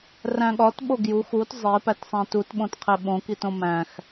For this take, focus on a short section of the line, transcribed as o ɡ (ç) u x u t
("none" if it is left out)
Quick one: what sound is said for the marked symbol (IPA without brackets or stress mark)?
j